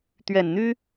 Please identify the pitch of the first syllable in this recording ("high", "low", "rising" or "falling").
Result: low